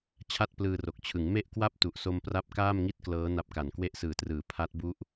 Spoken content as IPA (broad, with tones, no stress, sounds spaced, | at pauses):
t͡ɕʰ a˥˩ t̚ p l ɯː˧ r o˨˩ k̚ t͡ɕʰ ɯ˩˦ ŋ m e˥˩ ʔ k w a˥˩ p̚ t u˨˩ ʔ s o˧ m p r a˦˥ p̚ k aː˥˩ m ŋ i˥˩ t̚ k l ɤː˦˥ n a˦˥ p̚ k a˨˩ n k w e˦˥ ʔ s ɯː˨˩ t r ɯː˩˦ pʰ a˦˥ t̚ b u˦˥ ʔ